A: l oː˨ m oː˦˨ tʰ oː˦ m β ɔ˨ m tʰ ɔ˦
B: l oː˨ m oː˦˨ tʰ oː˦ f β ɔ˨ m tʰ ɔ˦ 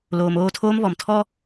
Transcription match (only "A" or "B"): A